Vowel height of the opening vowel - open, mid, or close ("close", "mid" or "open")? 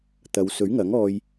open